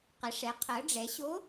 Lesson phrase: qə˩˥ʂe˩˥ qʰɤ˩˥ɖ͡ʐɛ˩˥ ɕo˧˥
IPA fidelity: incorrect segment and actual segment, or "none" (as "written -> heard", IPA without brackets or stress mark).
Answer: e˩˥ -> ɛ˩˥